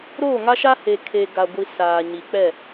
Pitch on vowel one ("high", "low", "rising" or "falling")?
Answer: falling